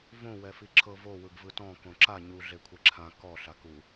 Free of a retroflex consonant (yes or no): yes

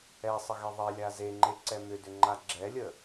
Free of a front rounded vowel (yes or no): no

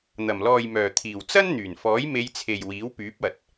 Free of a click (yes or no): yes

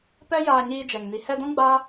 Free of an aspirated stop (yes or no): yes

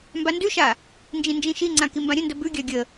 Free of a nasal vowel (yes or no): no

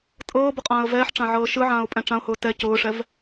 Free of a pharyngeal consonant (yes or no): no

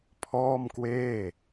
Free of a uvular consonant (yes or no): yes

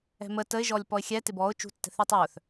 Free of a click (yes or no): yes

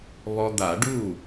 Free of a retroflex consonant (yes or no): no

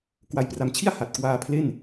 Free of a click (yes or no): yes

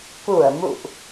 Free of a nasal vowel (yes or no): yes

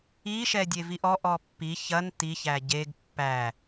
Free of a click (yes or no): yes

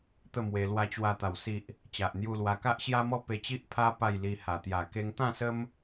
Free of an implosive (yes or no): yes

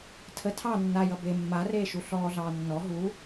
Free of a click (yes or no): yes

